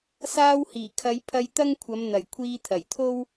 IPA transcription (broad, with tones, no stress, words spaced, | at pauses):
saː˧whiː˨˩kʰɐ˨˧j pʰɐ˧jt̪ɐ˥ŋkʷʰɐ˨˧m n̪ɐ˨˩j kʷʰiː˧t̪ʰɐ˨˩jt̪ʰo˥w